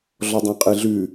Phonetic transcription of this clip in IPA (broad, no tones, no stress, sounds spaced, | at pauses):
ɮ ɔ dˤ œ̃ qʼ ɨ ɮ ʉ